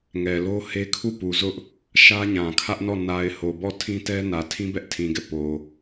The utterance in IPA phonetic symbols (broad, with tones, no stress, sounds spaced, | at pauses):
ŋ ɛ˨ l o˦ h e˦ kʰ u˦˨ p u˨ z ʊ˦ ʔ | ʃ ä˦ ɲ ã˨ kʰ ä˦ ʔ n ɔ˦˨ n a˨ ɪ̯ h o˨ b ɔ˦˨ tʰ ĩ˦ t ɛ˦ n ä˨ tʰ ĩ˦ b ɛ˦ ʔ tʰ ĩ˨ ɡ ɛ˦˨ p o˨